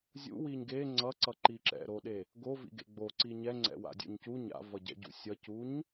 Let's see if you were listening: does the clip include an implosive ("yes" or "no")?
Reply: yes